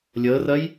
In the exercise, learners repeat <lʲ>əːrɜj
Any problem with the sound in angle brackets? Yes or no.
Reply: no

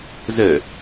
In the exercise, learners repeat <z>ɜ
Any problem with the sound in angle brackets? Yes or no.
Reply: no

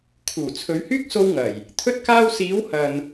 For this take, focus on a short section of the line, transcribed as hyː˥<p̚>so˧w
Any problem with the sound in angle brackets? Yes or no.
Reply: yes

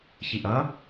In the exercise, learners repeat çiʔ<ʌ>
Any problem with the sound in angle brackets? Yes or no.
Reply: no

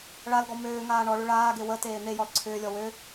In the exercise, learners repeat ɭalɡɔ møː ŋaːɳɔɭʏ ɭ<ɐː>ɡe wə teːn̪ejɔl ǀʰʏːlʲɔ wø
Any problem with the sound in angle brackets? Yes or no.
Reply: yes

